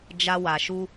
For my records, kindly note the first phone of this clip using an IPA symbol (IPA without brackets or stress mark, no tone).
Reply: d͡ʒ